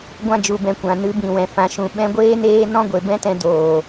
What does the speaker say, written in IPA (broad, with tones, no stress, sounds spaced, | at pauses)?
ɡʷ ã˧ d͡ʒ u˨ b ɛ̃˨ kʷ ã˨ n ɨ˨˦ b ĩ˨ w ɛ̃˨ f ã˨ ʃ ũ˨ ɓ ɛ̃˧ ɡʷ eː˦ n eː˦ n ɔ̃˦ ɡʷ e˨ b ɛ̃˦ t ɛ̃˧ d oː˨